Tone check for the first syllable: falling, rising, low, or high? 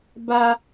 high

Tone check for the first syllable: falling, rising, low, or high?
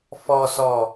low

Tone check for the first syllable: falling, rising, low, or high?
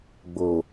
low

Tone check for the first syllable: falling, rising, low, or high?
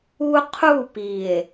high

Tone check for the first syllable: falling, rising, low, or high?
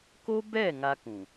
high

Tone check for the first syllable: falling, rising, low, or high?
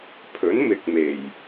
rising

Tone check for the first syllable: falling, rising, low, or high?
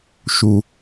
high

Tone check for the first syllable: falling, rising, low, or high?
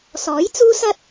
rising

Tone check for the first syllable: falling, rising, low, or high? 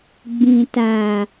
low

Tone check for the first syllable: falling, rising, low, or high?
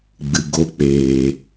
low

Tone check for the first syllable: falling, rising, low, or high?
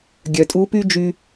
low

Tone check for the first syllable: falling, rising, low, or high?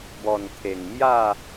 low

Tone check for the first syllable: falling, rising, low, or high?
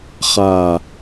low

